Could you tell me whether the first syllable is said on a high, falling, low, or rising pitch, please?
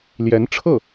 rising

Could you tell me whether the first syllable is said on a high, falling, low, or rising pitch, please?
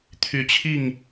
rising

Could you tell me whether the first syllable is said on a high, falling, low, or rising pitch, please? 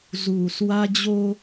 low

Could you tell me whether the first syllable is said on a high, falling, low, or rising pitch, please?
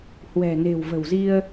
low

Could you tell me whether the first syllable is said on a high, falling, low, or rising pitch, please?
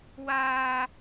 high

